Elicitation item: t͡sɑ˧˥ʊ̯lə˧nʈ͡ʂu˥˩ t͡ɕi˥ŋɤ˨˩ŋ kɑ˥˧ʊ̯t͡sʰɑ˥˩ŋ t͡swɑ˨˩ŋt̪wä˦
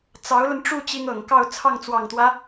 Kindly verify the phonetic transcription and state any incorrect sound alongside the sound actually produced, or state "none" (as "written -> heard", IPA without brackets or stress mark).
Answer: none